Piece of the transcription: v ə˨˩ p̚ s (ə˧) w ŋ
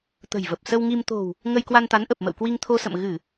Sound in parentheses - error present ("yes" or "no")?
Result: no